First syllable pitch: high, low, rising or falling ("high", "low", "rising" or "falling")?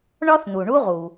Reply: high